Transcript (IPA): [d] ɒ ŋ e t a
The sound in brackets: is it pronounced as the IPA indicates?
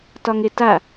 no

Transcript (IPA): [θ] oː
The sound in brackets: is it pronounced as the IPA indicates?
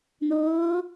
no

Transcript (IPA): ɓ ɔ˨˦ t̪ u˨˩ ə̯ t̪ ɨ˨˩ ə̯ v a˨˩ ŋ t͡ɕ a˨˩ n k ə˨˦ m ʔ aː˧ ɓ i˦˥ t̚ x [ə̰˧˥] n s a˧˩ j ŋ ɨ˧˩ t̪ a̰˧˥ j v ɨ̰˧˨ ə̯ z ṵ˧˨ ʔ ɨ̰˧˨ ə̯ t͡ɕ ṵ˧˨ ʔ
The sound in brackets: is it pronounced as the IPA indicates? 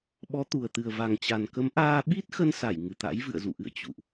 no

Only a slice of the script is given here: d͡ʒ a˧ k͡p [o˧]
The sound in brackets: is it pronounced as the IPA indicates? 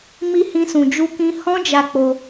yes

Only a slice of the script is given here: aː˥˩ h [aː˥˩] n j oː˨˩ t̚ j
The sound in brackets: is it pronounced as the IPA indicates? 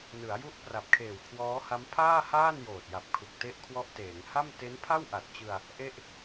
yes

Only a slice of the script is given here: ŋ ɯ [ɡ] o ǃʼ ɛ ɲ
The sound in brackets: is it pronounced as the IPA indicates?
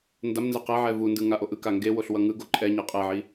yes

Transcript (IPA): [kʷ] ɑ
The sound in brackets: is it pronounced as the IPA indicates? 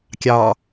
no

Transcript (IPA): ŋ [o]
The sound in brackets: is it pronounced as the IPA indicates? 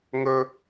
no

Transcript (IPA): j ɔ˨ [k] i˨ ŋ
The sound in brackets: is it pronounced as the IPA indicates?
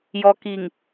yes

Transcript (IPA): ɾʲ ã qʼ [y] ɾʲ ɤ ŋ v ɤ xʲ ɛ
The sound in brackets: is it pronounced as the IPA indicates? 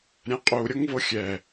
no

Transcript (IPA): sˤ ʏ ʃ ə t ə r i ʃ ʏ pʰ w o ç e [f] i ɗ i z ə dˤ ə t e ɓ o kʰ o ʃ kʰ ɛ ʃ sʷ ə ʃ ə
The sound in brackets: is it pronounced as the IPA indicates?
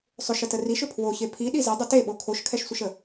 no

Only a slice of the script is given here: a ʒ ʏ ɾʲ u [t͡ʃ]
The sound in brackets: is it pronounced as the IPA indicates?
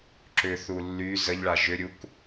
no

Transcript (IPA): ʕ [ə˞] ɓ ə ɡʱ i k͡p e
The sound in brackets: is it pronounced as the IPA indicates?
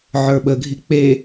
yes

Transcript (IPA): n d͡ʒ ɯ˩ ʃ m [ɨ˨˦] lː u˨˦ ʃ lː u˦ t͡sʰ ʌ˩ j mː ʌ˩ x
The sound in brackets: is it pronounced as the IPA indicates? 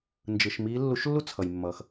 no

